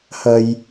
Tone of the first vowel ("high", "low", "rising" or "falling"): low